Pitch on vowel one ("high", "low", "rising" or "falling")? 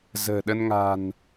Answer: low